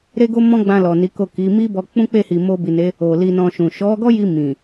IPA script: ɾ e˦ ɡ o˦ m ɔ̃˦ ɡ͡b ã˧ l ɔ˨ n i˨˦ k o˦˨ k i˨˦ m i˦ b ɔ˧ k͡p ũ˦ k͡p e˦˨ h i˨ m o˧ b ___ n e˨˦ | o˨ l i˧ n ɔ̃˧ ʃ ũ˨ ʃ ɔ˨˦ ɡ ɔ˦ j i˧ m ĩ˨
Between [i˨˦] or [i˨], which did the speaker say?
i˨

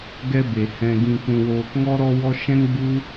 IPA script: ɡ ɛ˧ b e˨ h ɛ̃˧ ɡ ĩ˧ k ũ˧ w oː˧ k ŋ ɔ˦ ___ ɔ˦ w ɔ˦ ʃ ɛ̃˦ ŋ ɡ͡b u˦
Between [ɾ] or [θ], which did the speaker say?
ɾ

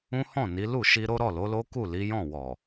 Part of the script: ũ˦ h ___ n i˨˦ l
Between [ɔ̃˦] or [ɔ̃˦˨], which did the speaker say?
ɔ̃˦˨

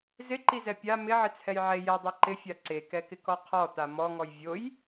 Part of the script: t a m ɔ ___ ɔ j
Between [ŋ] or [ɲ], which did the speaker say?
ŋ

